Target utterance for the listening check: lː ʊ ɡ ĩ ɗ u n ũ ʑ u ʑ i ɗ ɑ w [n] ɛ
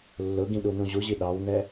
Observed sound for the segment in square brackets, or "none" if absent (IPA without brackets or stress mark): n